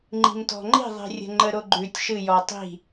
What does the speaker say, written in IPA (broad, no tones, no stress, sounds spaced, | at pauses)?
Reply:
ŋ͡ǃ i̤ m t ɔ̤ ŋ͡ǃ i̤ ðˤ i̤ rʲ ə̤ ŋ͡ǃ ə ɾ o ɡ͡ǃ ʉ tʲ ʃ ɨ j ɔ tˤ i̤